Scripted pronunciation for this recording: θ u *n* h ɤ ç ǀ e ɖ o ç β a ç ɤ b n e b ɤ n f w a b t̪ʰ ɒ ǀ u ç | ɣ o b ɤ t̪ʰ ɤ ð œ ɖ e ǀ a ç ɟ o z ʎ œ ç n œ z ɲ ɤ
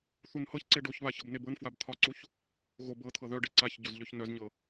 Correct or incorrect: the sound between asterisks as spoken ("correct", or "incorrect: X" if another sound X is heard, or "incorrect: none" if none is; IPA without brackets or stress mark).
correct